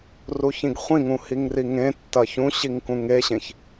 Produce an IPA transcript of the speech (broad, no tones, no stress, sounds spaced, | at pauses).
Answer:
r u ç ĩ ɡ χʷ ĩ ŋ ũ h i ŋ r i ŋ ẽ tː ɐ ç ũ ɕ i ŋ k ũ ŋ e ɕ ẽ ç